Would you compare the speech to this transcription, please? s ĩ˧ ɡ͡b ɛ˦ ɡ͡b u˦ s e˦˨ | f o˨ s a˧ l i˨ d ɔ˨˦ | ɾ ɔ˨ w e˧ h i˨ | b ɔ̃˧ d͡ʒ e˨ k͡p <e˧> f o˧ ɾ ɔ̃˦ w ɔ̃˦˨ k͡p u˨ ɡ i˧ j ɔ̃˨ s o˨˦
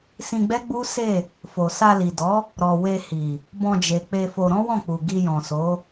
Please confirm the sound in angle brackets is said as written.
yes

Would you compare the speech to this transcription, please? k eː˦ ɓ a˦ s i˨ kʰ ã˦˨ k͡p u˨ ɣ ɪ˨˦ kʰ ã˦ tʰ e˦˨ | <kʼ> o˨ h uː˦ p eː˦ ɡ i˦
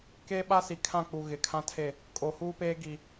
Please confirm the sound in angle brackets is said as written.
yes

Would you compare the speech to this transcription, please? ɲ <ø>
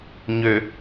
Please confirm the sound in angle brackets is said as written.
yes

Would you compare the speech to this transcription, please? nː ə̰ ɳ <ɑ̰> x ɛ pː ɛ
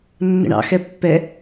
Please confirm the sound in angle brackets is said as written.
yes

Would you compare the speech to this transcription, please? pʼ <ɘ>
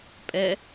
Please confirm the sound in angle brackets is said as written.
no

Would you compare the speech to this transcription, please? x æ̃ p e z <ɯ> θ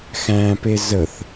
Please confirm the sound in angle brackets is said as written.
no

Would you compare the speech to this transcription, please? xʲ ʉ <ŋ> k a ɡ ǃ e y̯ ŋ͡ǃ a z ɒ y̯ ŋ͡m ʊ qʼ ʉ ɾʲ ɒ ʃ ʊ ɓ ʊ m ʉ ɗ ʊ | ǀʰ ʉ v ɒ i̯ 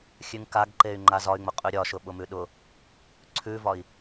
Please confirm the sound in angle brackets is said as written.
yes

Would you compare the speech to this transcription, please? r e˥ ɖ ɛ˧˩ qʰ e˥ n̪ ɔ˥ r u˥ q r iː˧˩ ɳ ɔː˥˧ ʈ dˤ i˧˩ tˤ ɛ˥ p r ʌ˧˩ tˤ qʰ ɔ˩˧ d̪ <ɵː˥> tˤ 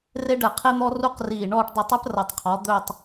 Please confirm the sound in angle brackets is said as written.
no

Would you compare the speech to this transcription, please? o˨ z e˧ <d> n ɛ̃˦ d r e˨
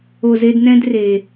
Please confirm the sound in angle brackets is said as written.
yes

